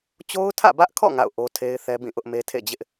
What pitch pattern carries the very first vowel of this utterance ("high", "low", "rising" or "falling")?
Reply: high